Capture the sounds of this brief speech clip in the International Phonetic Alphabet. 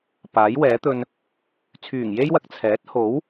p aː˨˥ j w ɛː˨˥ t̪ ɵ˧ n | t͡sʰ yː˨˩ ŋ j e˥ j w ɐ˧ k̚ t͡sʰ ɛː˨˥ t̚ h o˨˥ w

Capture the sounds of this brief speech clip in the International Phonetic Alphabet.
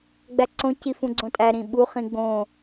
ɡ͡b æ ǀ õ c i f ũ ɡ͡ǀ õ tʼ æ ɾ ĩ ɓ u χ ĩ ɡ͡b õ

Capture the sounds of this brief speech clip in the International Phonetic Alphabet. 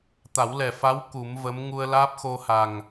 t̪ a˨˩˦ w l ɛ˨˩ f a˧˥ w k u˨˩˦ m v ə˧˥ m ŋ u˧ ə̯ l aː˦˥ p̚ x o˧ h a˨˩ ŋ

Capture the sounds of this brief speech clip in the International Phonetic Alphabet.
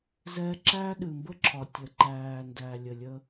z ɛ˦ ǁ æ˦ ɗ ɨ˨ m b ə˦ ǁʰ ɒ˨ tʲ ə˨ ǃ æː˨ n d æ˨ lʲ ə˨ lʲ ə˦

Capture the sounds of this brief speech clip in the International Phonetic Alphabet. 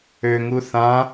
ø ŋ u θ ã

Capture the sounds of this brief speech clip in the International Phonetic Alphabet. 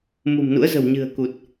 m ṳ˨˩ m n ṵ˧˥ ə̯ z ə̤˨˩ w ɲ ɨ̤˨˩ ə̯ k u˨˩ t̚

